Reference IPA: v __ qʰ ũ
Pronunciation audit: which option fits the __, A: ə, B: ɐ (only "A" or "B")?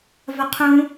B